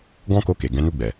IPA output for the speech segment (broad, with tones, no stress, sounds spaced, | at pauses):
ɡ ɔ̃˦ k o˧ k e˨ ɡ ɛ̃˨˦ n u˧ ɡ͡b ɛ˨